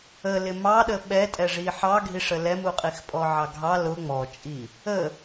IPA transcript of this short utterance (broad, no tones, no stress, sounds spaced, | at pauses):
ə l ɪ m ɑ ɗ ə ɓ ɛ tʼ ɛ ʐ i ħ ɑ ɡʱ i ʂ ə l ɛ m u qʼ i x pʼ ɔ ʕ ɑ ɡʱ ɑ l ʊ ŋ͡m ɔ t͡ʃʼ i | ə